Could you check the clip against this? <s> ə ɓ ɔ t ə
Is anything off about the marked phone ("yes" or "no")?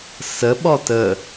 no